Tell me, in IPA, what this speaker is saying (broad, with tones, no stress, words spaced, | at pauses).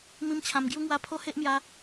mĩ˦mt͡ɕʰã˧m ɡju˦ŋwa˦ pʰo˦he˦ʔmja˧